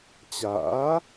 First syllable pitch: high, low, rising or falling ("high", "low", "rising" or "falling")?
rising